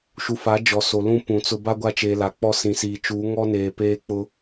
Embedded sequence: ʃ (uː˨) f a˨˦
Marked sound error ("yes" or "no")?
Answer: yes